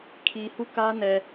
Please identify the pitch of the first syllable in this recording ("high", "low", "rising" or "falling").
low